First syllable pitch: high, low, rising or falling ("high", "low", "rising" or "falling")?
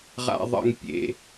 low